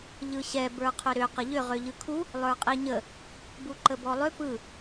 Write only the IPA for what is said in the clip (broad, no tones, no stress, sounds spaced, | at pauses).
ʎ ɯ ɕ ɛ b ə˞ qʰ ʏ ɾ ʏ q ə ʎ ʏ ʁ ø ʎ ɯ kʰ u | lˠ ə˞ qʼ i ɲ ə | b u ǃ ə b ɔ lˠ ʏ p ɯ